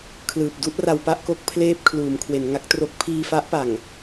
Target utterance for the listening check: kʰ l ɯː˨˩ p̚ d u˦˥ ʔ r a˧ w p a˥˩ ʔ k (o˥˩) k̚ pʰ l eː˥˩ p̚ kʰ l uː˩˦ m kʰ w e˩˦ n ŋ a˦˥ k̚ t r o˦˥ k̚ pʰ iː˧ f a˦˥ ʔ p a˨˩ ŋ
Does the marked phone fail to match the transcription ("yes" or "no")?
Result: no